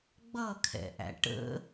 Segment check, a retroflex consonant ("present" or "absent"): present